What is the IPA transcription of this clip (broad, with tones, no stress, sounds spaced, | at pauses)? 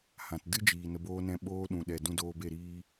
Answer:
h ã˨ t d ɨ˦ d͡ʒ iː˨ n ə˧ b oː˦ n ɛ̃˦ ɓ oː˦ ɗ ũ˨ ɗ ɛ˨ d ũ˧ d oː˧ b e˦˨ ɾ iː˧